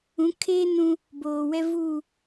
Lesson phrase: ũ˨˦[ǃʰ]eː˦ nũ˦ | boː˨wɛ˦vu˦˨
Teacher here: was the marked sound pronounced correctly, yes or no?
no